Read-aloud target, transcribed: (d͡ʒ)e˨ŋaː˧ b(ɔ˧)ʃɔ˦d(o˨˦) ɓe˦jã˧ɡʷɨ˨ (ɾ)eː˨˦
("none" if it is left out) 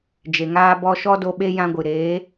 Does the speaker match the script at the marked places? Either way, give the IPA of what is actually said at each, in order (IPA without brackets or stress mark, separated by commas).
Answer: d͡ʒ, ɔ˧, o˧, ɾ